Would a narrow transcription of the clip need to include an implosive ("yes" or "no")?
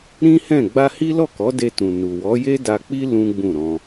no